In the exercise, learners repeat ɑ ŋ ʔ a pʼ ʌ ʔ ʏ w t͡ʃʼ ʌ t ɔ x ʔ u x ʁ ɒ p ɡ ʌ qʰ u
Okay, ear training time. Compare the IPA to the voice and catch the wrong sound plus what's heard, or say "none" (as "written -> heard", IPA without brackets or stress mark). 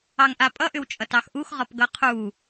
ɔ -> ɑ